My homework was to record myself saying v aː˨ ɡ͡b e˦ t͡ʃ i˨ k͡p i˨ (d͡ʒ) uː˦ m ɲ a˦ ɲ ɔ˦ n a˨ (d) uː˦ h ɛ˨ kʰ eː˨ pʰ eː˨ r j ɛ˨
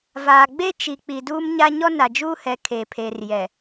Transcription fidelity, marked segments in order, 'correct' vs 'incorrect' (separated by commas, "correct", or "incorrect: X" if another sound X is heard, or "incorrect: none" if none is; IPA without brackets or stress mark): incorrect: d, incorrect: d͡ʒ